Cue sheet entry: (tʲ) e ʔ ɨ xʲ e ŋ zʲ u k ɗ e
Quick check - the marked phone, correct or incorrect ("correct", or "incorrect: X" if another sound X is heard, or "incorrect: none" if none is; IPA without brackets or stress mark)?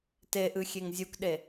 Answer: incorrect: t